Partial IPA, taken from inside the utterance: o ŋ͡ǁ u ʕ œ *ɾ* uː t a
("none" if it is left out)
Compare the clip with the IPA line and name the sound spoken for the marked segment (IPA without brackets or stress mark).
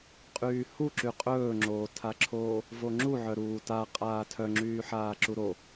ɾ